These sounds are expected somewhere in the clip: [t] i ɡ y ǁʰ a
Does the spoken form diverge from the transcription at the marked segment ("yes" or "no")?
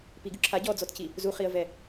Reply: yes